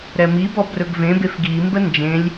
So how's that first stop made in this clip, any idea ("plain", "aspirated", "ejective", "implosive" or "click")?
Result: plain